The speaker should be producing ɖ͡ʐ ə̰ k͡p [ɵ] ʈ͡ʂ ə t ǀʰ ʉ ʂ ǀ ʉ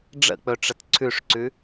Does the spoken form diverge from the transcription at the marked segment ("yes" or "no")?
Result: no